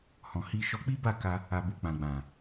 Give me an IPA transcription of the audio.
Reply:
hɔ̃˨hi˧ ʃɔ˧k͡pi˦ba˦˨ka˧ | a˨bu˨ k͡pã˨ɡ͡bã˨

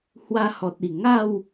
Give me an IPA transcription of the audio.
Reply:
hwa˧hɔ˨t̚i˨˩ ŋa˥˧w

